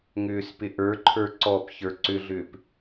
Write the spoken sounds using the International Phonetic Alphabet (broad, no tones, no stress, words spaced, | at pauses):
ŋʏːspɪʔə˞ǃʰə˞ ǀɔpçə˞ ǀʏɮʏːp